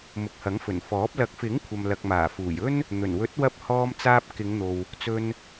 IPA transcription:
m ʊ˨ k̚ h ɐ˨˥ ŋ f ɵ˨˩ n f ɔː˨˥ p̚ l ɐ˨˥ k̚ f ɪ˨˥ ŋ kʷʰ ɐ˨ m l ɐ˨ k̚ m aː˨˩ f uː˨˩ j ɵ˥ n | n̪ ɵ˨˩ n w ɵ˨˥ t̚ w ɐ˧ p̚ h ɔː˧ m t͡s aː˧ p̚ k ɪ˨˧ ŋ n̪ o˨ w | t͡s ɵ˧ n

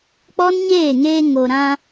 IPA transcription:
k͡p ɔ˦ n ɲ eː˦˨ ŋ eː˧ ŋ o˨ ɾ ã˧

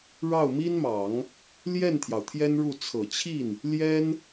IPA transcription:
ɻ ɑ˥˩ ʊ̯ m i˥ n m ɑ˨˩˦ ŋ | l j ɛ˥˩ n t̪ʰ j ɑ˩ ʊ̯ t̪ʰ j ɛ˥ n ɻ u˥˩ t͡sʰ ɤ˨˩ t͡ɕʰ i˥˩ n | l j ɛ˥ n

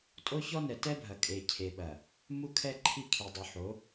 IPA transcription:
tʼ o˦ ç ɔ˦ n ɛ˨ t ɛ˦ bʱ ɐ˨ kʼ e˨ cʰ e˨ ɓ ɐ˨ | m u˦ kʰ ɛ˦ ǃʰ i˦ kʰ i˨ dˤ u˨ ħ o˨˦

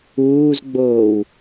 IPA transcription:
uː z ɡ͡b oː w

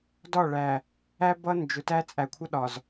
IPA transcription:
d ɒ˦˨ ɭ æ˨ | æ˦ b ʌ˦ n d͡ʒ ʊ˨ t æ˦ t͡sʼ æ˨ kʷʰ ʌ˦ ɗ ɒ˨ z

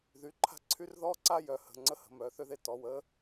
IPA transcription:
ð y˩˧˩ ǃʰ a̤˥ ǀʰ y˥ r ð ɔ˥ ǀ a˥ j œ˩˧˩ h ə̤˩˧˩ ŋ͡ǀ ə˥ h ə̤˩˧˩ m œ˩˧˩ θ ø˥ ð e˥ t ɔ˩˧˩ w ə˥

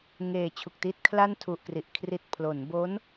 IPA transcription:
ŋ eː˨˩ t͡ɕʰ u˨˩ k̚ t i˥˩ t̚ kʰ l a˥˩ n tʰ u˨˩ ʔ k r i˨˩ ʔ kʰ r i˨˩ t̚ pʰ l o˩˦ n b o˦˥ n

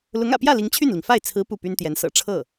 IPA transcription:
l ʊ˧˥ ŋ ä̰˨˩ p j ä˥˩ l i˧˥ ŋ t͡ɕʰ y˥˩ n l i˩ ŋ f a˥˩ ɪ̯ t͡sʰ ɹ̩˧˥ p u˥˩ p y˥ n t̪ j ɛ˧˥ n s ɤ̰˨˩ ʈ͡ʂʰ ɤ˥˩

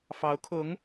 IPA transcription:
f ɑ˧˥ ʊ̯ kʰ ʊ˧˥ ŋ

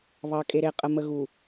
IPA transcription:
β ɑ˨ kʼ e˨ ɾ e˨ qʼ ə˨ m ə˨ ɣ u˨

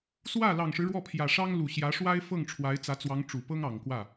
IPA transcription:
s w ä˥˩ l ɑ˨˩ ŋ ʂ ɻ̩˦ ɻ w ɔ˥˩ pʰ j ä˨˩ ʂ ɑ˥ ŋ l u˨˩ ɕ j ä˧˥ ʂ w a˥ ɪ̯ f ɤ˥˩ ŋ ʈ͡ʂʰ w a˧˥ ɪ̯ t͡s ä˧˥ t͡s w ɑ˧˥ ŋ ʈ͡ʂ u˨˩ p ɤ˥ ŋ ɑ˨˩ ŋ k w ä˥˩

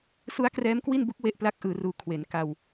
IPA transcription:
s u˦˥ a̯ k r ɛː˦˥ m k w i˥˩ n b u˦˥ k̚ w e˥˩ ʔ p l a˥˩ k̚ ʔ ɯː˩˦ r uː˨˩ kʰ w e˩˦ n k a˧ w

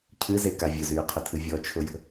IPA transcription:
cʰ ɨ z e k a vʲ ʊ z yː qʰ ʊ tʰ ɨ vʲ ɔ t͡ʃʰ ʊ j ə̤

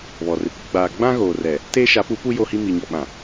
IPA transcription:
β ɔ˨ r ɪ˨ kʷ ɪ˦ ɡ͡b aː˨ ɡ͡b ã˦ ɣ oː˨ r ɛ˨ | t eː˦ ʃ a˨˦ p u˨˦ p u˦ j o˦ h i˦ m i˨ ɲ ɔ˨ ɓ ã˨

